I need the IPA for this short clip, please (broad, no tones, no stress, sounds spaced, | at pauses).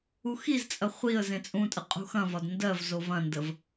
u x i z t͡sʼ ɐ χʷ i ə̯ z ẽ t͡sʼ ũ tʼ ə qʼ ṳ x ɐ̃ v ɒ d n d ɜ v z o v ɐ̃ n d ə v